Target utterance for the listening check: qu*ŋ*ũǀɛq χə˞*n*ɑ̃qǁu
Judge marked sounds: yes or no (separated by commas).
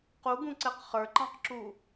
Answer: no, no